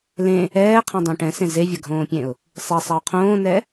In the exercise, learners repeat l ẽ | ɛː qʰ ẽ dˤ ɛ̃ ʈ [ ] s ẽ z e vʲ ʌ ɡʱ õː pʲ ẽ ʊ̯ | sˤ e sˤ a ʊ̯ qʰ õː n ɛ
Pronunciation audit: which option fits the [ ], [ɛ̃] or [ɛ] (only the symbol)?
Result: ɛ̃